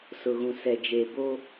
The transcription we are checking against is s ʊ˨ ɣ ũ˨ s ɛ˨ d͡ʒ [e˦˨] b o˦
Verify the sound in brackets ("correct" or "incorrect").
incorrect